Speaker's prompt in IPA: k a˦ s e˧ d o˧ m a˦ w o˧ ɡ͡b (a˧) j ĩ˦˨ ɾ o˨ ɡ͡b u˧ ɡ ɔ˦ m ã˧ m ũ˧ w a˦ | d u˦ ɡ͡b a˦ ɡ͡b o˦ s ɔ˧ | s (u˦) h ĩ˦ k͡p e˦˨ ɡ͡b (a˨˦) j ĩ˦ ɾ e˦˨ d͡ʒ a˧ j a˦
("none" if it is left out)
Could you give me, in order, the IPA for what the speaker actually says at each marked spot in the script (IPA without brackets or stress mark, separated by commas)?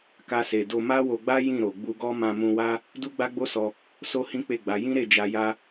a˦, o˦, a˨˦